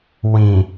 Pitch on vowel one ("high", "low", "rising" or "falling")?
low